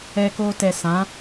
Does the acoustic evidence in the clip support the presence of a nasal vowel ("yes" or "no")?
yes